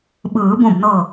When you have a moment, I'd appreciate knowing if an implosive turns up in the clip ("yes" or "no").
yes